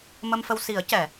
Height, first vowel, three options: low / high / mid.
mid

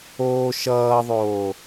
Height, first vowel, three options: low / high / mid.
mid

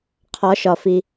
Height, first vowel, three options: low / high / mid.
low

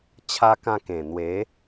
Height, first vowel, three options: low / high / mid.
low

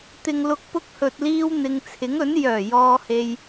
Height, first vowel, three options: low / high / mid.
high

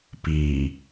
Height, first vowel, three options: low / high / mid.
high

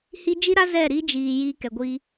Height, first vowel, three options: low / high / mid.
high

